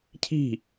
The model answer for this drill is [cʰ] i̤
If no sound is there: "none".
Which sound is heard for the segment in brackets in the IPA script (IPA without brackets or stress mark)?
cʰ